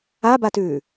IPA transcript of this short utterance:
abatʉː

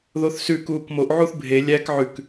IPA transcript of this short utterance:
ðoθsʉ kuːkmoʔ ʕuθbʱe lʲæk ʕʉk

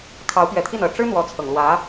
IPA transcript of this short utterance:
kʰɑ˧˥ʊ̯pɥɛ˨˩t̪ʰi˥˩n ɤ˨˩ ʈ͡ʂɻ̩˥ n̪wɔ˧˥t͡sʰɤ˨˩ŋlwä˧˥

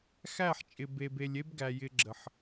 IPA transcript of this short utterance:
xæ˦˨ħt͡ʃʼɪ˨ be˨b e˨lʲe˦bɡæ˨ jɪ˧ɡ͡ǁə˨ħ

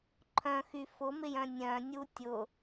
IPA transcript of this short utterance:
ǃʰœ̃xy fʊmɪjœ̃ nʲœ̃nʲu tʲʊ

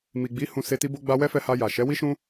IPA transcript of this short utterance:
mi˨ɡ͡bi˨˦ hũ˧se˧ ti˧bo˧ɡ͡ba˧ wɛ˦fɛ˧ha˧ja˨ ʃɛ˨˦wi˦ʃũ˦

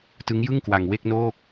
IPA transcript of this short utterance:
tɯ˦˥ŋjɯ˥˩ŋkwa˧ŋ we˥˩k̚noː˥˩k̚

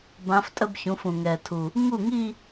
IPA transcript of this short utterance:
bã˧˥f tʼə˥˧bçũ˩˥fũ˨˩ ŋɛ˨˩tʰu˨˩ | ŋu˥˩ŋi˥˧

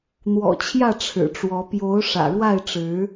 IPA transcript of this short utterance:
n̪wɔ̰˨˩t͡ɕʰjä˥˨ ʈ͡ʂʰɻ̩˨˩ʈ͡ʂwɔ˨˦ pjo˨˦ʊ̯ ʂä̰˨˩ɻwa˥˨ɪ̯ʈ͡ʂɻ̩˨˦

